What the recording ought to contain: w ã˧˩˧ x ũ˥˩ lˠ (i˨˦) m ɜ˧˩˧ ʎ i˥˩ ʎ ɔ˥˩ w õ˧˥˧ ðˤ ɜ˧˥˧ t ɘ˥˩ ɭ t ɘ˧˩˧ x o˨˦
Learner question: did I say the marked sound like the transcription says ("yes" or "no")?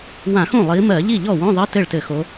yes